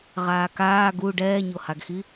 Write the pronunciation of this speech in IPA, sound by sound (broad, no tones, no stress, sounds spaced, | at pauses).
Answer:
ʁ aː k aː ɡ u ɖ ɛː ɲ o h a ɡ x i